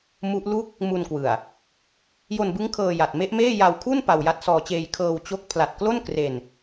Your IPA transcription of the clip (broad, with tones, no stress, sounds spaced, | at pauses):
m u˦˥ ʔ l u˥˩ k̚ | m u˧ n k w ɯ˨˩ a̯ | j o˧ n b ɯ˦˥ ŋ kʰ ɤː˧ j a˨˩ t̚ m e˦˥ ʔ m eː˥˩ j a˧ w kʰ u˥˩ n p a˧ w j a˦˥ t̚ s ɔː˧ t͡ɕ eː˧ j kʰ ɤː˧ w t͡ɕ o˦˥ k̚ pʰ l a˨˩ t̚ k l o˥˩ n k r e˧ n